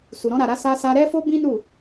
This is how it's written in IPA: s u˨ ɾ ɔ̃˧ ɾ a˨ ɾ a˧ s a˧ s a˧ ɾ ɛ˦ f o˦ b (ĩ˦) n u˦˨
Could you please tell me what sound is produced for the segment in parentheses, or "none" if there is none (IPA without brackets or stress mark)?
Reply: ĩ˦